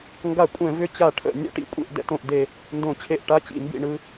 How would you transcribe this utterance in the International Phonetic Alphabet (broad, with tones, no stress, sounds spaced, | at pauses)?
ŋ ɡ a˧˩˧ kʷʼ ɛ̃˧˩˧ v ʏ˦˥ t͡ɕ a˧˩˧ ʈʰ ə̰˧˩˧ nʲ ɛ̰˦˥ ʈ ḭ˦˨ kʷʼ ḛ˦˨ ʔ d ɛ̰˧˩˧ t õ˦˨ ʔ d e˦˨ | n d õ˧˩˧ t͡ɕʰ e˦˨ ʔ ʈ a˦˥ t͡ɕ ḭ˧˩˧ m b ḭ˦˨ ɳ ɯ˦˥